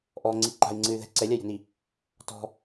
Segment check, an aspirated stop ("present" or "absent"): absent